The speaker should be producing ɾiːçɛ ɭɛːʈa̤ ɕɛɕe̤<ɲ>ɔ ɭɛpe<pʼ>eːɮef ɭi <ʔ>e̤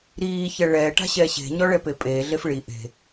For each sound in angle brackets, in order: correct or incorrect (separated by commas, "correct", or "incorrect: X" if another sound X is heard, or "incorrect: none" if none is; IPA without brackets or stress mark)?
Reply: correct, correct, correct